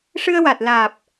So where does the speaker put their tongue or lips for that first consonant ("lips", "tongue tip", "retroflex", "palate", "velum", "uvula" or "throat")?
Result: retroflex